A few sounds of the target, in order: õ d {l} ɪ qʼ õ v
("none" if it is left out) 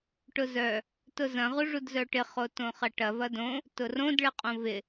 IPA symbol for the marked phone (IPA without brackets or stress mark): ɭ